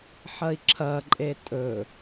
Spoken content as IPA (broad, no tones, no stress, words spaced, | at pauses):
ħɐi̯ǁʰɐǃʼe tʼɵ